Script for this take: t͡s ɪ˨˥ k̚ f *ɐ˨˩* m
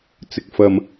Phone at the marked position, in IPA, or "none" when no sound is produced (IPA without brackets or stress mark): ɐ˧